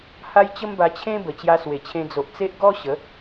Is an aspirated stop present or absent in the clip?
present